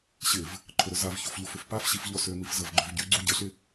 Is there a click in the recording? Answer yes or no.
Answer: yes